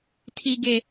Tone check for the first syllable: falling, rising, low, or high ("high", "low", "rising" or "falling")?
high